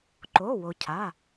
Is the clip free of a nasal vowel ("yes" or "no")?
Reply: yes